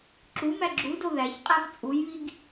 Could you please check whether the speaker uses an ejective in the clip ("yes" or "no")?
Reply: yes